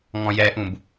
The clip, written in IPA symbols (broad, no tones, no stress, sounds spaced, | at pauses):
ŋ ɔ̃ j ɛ ʔ ũ b